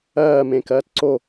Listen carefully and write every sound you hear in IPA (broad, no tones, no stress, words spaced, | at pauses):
ɜːmẽkɜːt ǀo